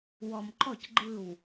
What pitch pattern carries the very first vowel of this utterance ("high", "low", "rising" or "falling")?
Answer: low